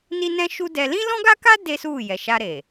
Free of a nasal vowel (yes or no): no